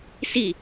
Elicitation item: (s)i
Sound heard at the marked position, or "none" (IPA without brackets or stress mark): s